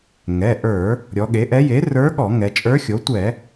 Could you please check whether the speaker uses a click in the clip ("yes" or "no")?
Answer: no